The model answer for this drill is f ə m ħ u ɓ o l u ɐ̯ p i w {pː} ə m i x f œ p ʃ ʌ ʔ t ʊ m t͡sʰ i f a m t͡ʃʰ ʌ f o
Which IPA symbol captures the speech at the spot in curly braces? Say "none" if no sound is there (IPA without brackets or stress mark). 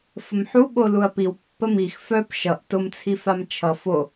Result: pː